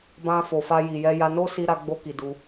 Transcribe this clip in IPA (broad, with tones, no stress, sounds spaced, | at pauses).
b ã˧ f o˨ f a˧ j i˨ j ɛ˧ j a˧ n o˦ s i˧ ɾ a˧ ɡ͡b o˧ k i˨ d u˧